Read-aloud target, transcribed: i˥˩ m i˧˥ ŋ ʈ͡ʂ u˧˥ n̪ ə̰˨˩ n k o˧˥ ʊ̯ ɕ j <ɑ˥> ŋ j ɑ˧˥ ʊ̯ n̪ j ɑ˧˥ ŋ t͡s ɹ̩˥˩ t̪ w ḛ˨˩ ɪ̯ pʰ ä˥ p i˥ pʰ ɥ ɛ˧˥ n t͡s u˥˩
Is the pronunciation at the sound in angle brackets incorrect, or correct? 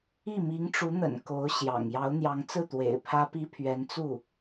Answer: incorrect: ɑ̰˨˩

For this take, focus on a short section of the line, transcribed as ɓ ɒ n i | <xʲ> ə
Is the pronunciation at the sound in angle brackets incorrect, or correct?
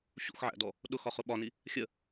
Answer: correct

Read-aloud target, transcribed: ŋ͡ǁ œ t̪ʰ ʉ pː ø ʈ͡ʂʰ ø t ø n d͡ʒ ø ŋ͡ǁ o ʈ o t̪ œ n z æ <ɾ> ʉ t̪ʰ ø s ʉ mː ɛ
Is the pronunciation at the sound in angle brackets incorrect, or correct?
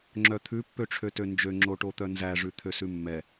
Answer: incorrect: ʐ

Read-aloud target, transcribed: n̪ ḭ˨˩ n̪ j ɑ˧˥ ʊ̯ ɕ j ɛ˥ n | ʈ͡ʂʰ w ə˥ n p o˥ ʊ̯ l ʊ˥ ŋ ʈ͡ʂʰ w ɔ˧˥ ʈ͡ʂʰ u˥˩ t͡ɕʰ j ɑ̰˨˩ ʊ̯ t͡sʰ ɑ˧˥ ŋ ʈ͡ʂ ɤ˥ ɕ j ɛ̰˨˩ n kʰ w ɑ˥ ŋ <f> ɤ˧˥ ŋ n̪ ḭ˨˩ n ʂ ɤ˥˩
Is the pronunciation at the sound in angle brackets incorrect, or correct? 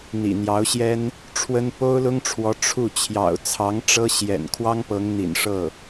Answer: incorrect: p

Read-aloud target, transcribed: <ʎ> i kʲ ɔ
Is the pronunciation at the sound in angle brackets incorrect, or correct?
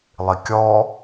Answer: incorrect: lˠ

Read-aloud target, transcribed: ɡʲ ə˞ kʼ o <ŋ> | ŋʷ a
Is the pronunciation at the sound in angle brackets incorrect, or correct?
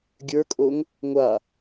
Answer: correct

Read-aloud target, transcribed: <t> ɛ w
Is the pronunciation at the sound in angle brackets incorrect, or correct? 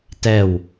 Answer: correct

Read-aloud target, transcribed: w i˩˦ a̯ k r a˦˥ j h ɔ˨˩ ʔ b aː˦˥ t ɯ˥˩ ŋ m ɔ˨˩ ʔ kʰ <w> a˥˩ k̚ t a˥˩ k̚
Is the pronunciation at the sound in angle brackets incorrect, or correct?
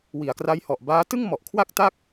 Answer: correct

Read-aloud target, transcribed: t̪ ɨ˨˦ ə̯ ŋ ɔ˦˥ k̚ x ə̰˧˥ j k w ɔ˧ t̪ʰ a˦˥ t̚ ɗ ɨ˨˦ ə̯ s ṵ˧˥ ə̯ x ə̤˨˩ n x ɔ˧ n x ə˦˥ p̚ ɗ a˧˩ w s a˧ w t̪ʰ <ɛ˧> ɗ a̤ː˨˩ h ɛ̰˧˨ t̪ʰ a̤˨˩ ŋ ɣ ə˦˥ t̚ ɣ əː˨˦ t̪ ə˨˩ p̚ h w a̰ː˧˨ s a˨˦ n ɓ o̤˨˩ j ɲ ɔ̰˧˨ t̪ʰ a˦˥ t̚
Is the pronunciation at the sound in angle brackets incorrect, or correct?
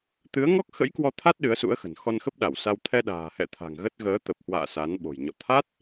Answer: correct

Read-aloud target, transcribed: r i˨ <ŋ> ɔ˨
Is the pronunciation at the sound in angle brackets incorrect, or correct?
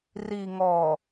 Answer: correct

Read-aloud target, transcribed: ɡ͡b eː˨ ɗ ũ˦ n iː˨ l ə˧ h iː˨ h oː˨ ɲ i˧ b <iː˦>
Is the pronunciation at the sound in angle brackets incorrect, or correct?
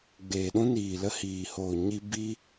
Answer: incorrect: i˦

